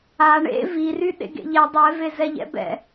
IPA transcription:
a ɳ ḛ v i r y ɗ ḛ ɡ ḛ ʎ ɛ dˤ ɛ v e z ɛ ʎ ɛ̰ b ɛ̰

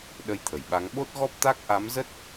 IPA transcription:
ɗ ə˧ j t̪ʰ ə˧˩ j ɓ a˨˦ ŋ ɓ o˦˥ t̚ ɣ ɔ˦˥ p̚ t̪ a˦˥ k̚ ʔ a˨˦ m z ə˦˥ t̚

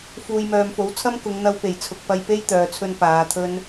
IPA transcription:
f uː˨ j m œː˨ m f o˨˥ w t͡sʰ ɐ˥ m k ʊ˨˧ ŋ n̪ ɐ˧ w p e˨˩ j t͡sʰ ʊ˨ k̚ p ɐ˧ j p e˥ j t̪ œː˨ t͡sʰ ɵ˧ n p aː˨˧ t̪ʰ ɵ˥ n

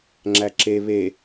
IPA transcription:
ŋ͡ǁ æ ǁ e β e

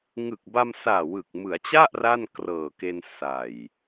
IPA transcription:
ŋ ɯ˨˩ k̚ b a˧ m s aː˨˩ w ɯ˨˩ k̚ m ɯ˩˦ a̯ t͡ɕ a˥˩ ʔ r a˥˩ n k r ɤː˨˩ k e˧ n s a˨˩ j

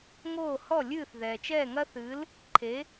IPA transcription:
ŋ oː˥˩ h ɔ˥˩ lʲ ɨː˥˩ θ ð ɛː˩ t͡ʃ ɛː˥˩ ŋ ɐ˥ θ ɨ˩˥ l | ǃʰ e˩˥

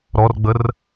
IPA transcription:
ɾ ɔ r ɡ͡b ə r

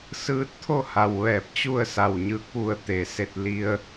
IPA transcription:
s ɯː˧ t̚ t̪ʰ o˥˨ h a˩ w ʋ ɛː˧˩ p̚ t͡ɕ u˥˨ ə̯ s a˧˩ w ɲ ɯː˧˥ k̚ ʋ u˩ ə̯ t̪ e˩ s e˧ t̚ l i˧ ə̯

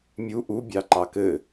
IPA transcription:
mʲ u ʔ u bʲ ɑ ǃ ɑ k ɘ

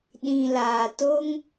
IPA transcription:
ɗ ĩ˨ l aː˨ t o˦ ŋ

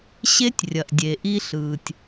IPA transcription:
ɕ e˦ tʲ rʲ ɐ˨ ʔ dʲ e˨ ʔ i˧ ɬ ɯː˨ tʲ

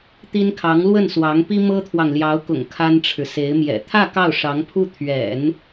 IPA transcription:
t̪ i˥ n kʰ ɑ˧˥ ŋ l w ə˥˩ n s w ɑ˧˥ ŋ p i˥ m ɤ˥ t̪ʰ w ɑ˨ ŋ l j ɑ˧˥ ʊ̯ k ʊ̰˨˩ ŋ kʰ a˥ n ʈ͡ʂʰ ɻ̩˨ s e˧˥ ɪ̯ m j ɛ̰˨˩ t̪ʰ ä˥˧ k ɑ˥˩ ʊ̯ ʂ ɑ˧˥ ŋ pʰ u˥˩ t̪ʰ ɥ ɛ̰˨˩˦ n

